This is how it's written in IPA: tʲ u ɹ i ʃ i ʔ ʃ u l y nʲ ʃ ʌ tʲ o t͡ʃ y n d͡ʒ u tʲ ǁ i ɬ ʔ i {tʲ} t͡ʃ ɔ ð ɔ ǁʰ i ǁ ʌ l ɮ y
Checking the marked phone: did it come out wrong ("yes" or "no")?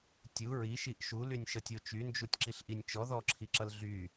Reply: yes